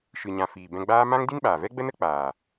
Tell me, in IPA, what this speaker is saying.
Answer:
ʃɨ˨ɲã˨ fiː˨bɛ̃˧ɡ͡baː˦ mã˦ŋdi˦nɓaː˨vɛ˦ ɡ͡bə˦nə˦k͡paː˨

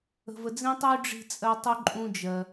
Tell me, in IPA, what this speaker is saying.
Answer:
ə̤˧və˧d͡zĩ˦tˤy˦ ɖ͡ʐi̤˦t͡sʼɜ˦ tˤu˦ǃʼũ˦d͡ʒɜ˧

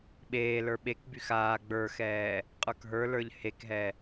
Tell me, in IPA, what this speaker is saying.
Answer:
ɓeːlə˞ ɓekbyx aː ɡ͡bə˞xɛː | qʼə˞kɦə˞lə˞ʎ hekɦɛ

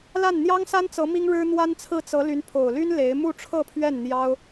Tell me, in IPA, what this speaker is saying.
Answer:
la˥˩nn̪jɑ˥ŋsa˥nt͡sɤ˧˥ mi˥ŋɻɻ̩˥n̪wa˥nt͡sʰɹ̩˥˩ t͡sɤ˧˥ ly˧˥npʰo˨˩ʊ̯ly˥n le˧˥ɪ̯ mu˥˧ʈ͡ʂʰɤ˥˧pʰɥɛ˥˩n n̪jɑ˥ʊ̯

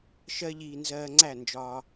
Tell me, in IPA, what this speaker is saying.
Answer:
ʃɜ˦ʎiː˧ nzɜː˧ŋ͡ǀæ˦˨ nd͡ʒɒː˦

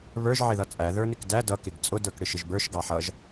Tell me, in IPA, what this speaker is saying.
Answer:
βə˞ʒ ʕɪðʌt͡sʼæ ðə˞nɪkdæ dʌ kɪɡt͡sʼʊ də˞kɽɪʃɪʒbə˞ʃ ɡɑħʌʒ

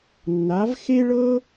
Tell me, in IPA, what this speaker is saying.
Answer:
nːa˧˥v xe˥ɭɤ˥

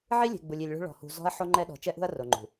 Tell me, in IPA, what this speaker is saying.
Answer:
ʕi˦ lʲe̤˨ ɡ͡bu˨lʲi˨lʲɭṳ˦ ɭɔ̤˨hṳ˨ zɔ̤˦ɐ̯ ħo˦ŋ͡ǃɛ˦ɗɔ̤˨ t͡ʃɛ˦ʔṳ˦ɐ̯ ro˨ŋ͡ǃṳ˨

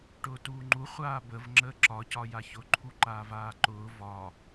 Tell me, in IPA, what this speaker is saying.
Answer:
ʈʊːtuːŋ͡ǃu χʷaːbəv ŋ͡ǁəːǁɒ cɒjaçʊ ǃʰuǃaːvaːǃʊː vɒ

